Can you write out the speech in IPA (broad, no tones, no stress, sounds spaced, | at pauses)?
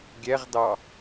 ɡʲ ɛ ʁ d ɑ